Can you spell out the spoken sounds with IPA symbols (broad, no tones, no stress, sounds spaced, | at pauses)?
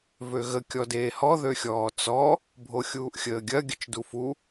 v ø ɣ ə kʲ ɔ d eː h ɔ ð ø xʲ ɔː t͡s ɔ | bʱ o xʲ uː ʔ xʲ əː ɡʲ ɐ ɡʲ ə t͡ʃ d u f u